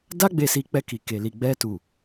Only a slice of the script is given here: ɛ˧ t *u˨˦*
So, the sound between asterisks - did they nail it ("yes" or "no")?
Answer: no